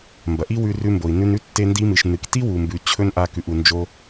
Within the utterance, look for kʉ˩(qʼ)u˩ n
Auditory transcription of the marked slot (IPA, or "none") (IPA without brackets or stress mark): ʔ